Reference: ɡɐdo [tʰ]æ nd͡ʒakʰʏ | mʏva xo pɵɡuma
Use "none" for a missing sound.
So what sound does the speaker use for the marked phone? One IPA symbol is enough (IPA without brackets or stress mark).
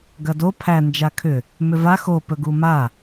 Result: pʰ